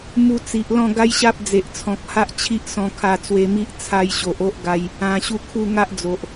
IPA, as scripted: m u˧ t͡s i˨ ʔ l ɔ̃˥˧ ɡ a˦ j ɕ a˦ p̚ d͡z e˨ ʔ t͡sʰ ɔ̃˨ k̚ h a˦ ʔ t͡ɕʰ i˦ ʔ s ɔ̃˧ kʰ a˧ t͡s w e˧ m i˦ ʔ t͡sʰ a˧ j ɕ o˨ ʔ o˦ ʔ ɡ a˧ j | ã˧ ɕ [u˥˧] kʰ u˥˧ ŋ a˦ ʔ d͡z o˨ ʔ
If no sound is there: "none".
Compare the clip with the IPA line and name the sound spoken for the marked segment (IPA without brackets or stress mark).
u˥˧